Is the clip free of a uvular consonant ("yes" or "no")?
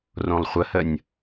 no